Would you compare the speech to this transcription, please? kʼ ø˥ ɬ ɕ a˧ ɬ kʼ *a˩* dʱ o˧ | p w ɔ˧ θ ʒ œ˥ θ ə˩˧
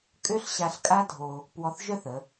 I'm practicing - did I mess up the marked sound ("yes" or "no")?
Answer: yes